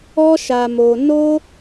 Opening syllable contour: high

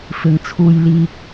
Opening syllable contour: low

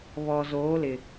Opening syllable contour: low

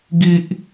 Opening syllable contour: high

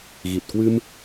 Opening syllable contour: low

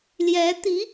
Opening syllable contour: rising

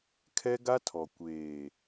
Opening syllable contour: high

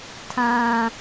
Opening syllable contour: high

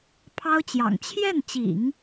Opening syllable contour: high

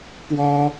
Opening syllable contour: high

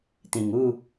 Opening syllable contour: low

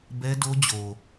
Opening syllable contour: high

